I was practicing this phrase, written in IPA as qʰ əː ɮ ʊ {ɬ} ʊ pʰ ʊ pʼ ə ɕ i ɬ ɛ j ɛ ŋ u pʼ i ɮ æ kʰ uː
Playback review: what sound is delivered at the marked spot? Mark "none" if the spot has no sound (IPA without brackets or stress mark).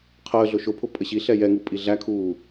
ʃ